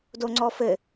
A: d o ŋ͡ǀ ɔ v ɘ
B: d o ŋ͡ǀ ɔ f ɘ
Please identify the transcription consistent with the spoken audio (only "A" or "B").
B